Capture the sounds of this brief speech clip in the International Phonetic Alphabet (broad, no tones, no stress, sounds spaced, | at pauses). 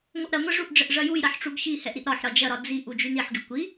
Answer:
ŋʷ ɐ ʔ ɾ ɐ ŋʷ ɛ ʐ u ʔ ɖ͡ʐ ə ʔ ʐ ɐ j u j ɾ ɐ ħ ʈ͡ʂ u ɡ ç i h ɛ ʔ ɾ i ʔ ɾ ɒ ħ ɾ ɒ d͡ʒ ɐ ɾ ɒ d͡z i ʔ u d͡ʒ y n i ħ ɡ y kʷ i